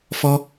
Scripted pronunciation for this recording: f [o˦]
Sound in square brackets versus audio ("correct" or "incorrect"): incorrect